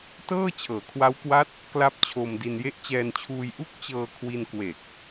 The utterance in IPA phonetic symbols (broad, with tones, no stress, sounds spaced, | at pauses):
t ɤː˥˩ t͡ɕʰ ɤː˩˦ kʰ w a˦˥ w k w a˦˥ t̚ | k l a˥˩ p̚ t͡ɕʰ o˧ m d i˧ n j e˦˥ ʔ t͡ɕ ɛː˧ n t͡ɕʰ uː˧ j ʔ u˥˩ k̚ t͡ɕ ɤː˧ kʰ w i˧ n k w e˨˩ k̚